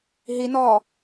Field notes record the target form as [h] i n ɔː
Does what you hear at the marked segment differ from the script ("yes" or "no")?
yes